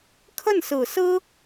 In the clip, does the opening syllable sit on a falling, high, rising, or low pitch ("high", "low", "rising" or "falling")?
falling